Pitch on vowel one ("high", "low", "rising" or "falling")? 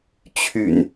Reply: low